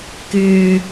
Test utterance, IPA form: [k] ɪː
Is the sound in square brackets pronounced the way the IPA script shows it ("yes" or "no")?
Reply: yes